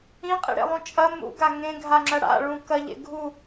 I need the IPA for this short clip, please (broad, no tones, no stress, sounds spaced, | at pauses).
ĩ qʼ ḭ ɽ ḛ lˠ ũ t͡ʃʼ ɐ m ṵ ɡ a ŋ ẽ ɡʱ a ŋ͡ǁ ɐ ɽ a̰ ɭ ũ k ɐ ʎ ḛ ɡʱ u